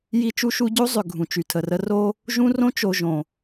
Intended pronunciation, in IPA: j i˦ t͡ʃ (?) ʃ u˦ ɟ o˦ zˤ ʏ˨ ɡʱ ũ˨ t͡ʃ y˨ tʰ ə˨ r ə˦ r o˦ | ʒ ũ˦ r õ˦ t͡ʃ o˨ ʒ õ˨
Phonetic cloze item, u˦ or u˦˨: u˦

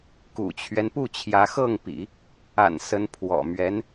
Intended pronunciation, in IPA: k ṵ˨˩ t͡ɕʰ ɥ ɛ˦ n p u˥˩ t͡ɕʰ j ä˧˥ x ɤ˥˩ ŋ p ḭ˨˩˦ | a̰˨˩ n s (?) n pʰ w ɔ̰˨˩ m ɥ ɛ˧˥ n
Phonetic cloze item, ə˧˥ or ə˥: ə˧˥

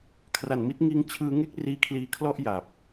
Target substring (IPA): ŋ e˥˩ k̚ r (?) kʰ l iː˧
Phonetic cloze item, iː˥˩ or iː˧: iː˧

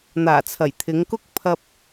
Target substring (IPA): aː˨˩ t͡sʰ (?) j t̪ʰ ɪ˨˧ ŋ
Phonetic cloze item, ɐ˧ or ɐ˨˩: ɐ˨˩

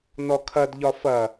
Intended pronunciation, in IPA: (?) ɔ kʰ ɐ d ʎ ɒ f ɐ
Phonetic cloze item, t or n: n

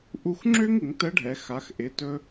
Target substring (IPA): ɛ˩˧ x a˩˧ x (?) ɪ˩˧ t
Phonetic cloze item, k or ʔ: ʔ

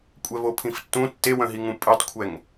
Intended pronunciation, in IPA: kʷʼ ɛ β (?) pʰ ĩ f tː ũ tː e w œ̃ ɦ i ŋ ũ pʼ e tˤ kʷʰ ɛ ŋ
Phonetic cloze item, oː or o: o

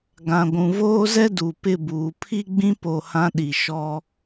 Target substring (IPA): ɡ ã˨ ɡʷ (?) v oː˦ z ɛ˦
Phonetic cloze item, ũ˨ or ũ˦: ũ˨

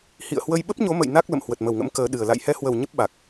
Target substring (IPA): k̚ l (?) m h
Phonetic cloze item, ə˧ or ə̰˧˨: ə̰˧˨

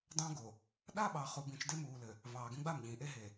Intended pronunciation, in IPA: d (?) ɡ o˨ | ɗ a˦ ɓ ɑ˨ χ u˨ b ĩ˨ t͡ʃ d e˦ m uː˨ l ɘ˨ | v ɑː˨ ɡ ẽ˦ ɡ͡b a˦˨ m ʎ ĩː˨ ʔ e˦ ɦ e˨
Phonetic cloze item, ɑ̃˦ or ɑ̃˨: ɑ̃˦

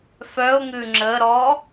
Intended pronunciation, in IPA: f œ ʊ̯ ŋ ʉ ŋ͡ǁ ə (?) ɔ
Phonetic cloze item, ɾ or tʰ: ɾ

